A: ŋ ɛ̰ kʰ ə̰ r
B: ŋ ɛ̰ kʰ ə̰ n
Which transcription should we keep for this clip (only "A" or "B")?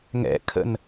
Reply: B